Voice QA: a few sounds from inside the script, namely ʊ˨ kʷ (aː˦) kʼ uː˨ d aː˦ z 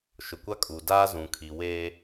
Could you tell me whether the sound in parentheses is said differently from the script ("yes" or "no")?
yes